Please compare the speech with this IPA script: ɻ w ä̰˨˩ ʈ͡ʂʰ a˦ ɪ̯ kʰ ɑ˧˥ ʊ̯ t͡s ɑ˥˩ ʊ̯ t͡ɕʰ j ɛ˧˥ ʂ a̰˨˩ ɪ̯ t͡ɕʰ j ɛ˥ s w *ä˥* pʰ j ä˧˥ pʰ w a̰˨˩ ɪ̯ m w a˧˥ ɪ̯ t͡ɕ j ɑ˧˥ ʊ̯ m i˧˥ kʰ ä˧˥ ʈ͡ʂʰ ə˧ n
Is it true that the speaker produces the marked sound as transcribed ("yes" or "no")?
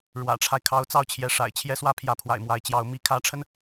yes